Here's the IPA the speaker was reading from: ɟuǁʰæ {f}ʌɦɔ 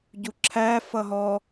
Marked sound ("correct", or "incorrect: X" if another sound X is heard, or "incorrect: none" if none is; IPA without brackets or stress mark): correct